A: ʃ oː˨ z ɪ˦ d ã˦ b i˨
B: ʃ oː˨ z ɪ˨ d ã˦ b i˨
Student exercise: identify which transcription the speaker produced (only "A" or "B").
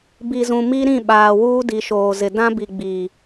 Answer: B